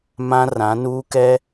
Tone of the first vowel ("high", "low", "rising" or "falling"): high